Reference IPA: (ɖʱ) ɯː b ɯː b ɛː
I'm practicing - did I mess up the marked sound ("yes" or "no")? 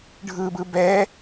no